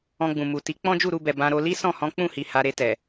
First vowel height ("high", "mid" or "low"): mid